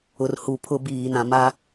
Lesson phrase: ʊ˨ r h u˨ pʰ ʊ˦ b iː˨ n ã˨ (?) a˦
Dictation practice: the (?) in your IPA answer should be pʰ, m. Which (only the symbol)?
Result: m